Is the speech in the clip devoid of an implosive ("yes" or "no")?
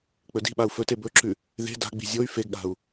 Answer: no